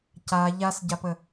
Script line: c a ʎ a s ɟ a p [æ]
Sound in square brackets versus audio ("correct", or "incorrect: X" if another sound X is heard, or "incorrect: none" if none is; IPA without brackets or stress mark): incorrect: ə